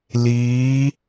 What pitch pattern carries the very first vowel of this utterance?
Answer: rising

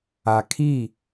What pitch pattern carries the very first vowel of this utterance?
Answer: low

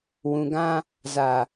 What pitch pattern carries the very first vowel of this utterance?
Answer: low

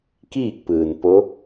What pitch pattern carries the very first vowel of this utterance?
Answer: falling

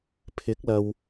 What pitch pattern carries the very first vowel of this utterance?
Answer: rising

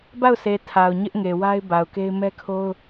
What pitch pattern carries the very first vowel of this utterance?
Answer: falling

